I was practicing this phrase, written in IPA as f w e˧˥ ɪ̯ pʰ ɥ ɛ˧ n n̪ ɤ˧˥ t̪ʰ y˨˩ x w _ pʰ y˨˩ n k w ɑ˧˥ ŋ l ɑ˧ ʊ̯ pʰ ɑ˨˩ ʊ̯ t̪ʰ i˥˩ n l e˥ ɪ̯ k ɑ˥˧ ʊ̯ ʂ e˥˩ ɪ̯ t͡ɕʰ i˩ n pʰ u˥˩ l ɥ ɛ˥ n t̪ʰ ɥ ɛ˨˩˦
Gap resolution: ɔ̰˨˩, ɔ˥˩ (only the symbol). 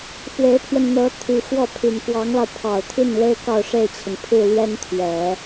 ɔ˥˩